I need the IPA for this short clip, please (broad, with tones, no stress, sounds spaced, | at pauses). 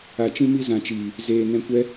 a˨ t͡ʃ ĩ˧ m i˧ z ã˨ t͡ʃ iː˨ | z eː˨ n ɛ̃˧ kʷ ɛ˦